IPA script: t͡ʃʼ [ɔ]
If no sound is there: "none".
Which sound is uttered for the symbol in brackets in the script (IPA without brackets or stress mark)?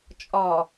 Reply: ɔ